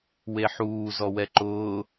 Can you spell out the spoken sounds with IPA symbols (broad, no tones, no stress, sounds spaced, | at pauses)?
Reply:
w e ħ uː z ɔ w ɛ ǃ ʊː